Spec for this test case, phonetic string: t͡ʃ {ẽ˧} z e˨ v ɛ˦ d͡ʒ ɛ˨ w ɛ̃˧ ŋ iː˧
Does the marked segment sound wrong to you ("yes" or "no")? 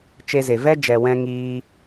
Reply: yes